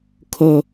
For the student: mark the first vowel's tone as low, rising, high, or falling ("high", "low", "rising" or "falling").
low